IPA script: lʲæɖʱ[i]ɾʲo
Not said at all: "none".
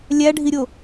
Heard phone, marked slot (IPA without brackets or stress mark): i